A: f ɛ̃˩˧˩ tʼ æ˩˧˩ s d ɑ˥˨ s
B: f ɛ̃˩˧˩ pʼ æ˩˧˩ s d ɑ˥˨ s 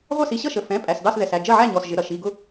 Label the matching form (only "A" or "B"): B